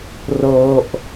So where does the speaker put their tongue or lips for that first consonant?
tongue tip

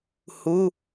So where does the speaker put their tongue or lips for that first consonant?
throat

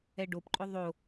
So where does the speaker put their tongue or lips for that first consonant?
retroflex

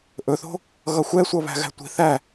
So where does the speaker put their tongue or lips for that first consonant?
throat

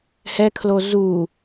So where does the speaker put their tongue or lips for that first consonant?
throat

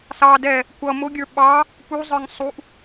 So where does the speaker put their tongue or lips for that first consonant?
tongue tip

